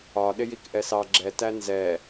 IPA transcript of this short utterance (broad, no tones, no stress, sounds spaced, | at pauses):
ɒ ɗ ɪ j i k ʔ ɛ s ɑ ɡ͡ǁ ɛ t æ n z ɛ